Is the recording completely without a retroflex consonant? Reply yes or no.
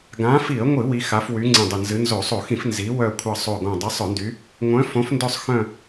yes